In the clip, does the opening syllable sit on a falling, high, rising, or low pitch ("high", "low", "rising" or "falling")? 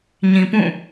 low